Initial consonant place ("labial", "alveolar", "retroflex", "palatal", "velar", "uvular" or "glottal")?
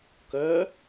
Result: velar